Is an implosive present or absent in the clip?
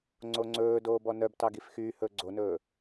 absent